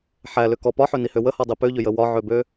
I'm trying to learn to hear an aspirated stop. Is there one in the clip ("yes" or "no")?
no